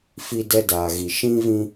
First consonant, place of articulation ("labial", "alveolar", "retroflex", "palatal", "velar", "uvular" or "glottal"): labial